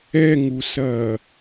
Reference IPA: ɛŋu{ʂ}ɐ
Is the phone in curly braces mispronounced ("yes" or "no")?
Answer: yes